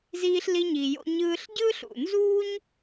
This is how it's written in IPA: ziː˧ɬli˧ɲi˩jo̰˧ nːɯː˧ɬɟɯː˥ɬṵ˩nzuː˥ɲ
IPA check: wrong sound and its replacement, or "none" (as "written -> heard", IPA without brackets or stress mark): nː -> ɲ